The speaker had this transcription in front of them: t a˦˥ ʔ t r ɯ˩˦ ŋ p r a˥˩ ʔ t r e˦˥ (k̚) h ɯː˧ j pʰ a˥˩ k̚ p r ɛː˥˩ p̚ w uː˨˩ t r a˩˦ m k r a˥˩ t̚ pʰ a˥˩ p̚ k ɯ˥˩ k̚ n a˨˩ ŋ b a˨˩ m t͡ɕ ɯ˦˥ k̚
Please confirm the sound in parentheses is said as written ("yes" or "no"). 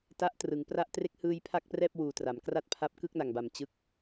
yes